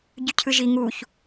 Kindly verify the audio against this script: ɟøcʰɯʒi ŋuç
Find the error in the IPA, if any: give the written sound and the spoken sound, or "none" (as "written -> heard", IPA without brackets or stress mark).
ø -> y